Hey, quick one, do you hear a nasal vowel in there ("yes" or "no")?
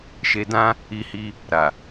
yes